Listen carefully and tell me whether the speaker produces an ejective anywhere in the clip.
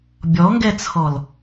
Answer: no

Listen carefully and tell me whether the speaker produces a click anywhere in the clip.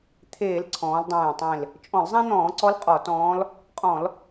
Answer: yes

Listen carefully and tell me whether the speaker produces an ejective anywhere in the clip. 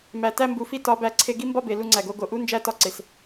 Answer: no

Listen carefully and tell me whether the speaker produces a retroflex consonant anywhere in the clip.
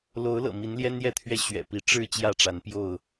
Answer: yes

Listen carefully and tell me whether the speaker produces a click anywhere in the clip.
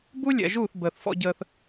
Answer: no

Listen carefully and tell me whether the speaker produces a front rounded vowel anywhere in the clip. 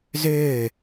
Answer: yes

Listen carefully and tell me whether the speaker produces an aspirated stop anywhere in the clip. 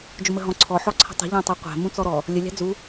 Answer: yes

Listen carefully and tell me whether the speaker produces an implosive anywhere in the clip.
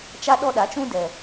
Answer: yes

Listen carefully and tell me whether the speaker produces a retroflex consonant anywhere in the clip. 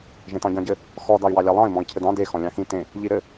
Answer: no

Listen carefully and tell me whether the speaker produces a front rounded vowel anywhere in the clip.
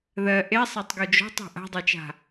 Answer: no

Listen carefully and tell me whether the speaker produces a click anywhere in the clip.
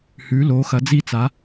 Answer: no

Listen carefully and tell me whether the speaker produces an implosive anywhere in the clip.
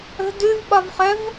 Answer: yes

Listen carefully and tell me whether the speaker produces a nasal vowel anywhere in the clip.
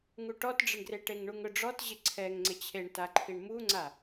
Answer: no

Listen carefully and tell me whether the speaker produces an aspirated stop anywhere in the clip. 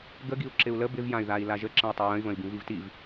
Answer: no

